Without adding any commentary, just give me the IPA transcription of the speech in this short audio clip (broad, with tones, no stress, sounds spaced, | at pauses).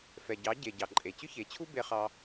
f ɛ˩ ɟ ɑ˩˥ ɟ e˩ ɟ ɑ˩ ǃʼ e˩ t͡ɕ ʏ˥ ç e˩˥ t͡ɕʰ u˥ b e˧ χ ɑ˧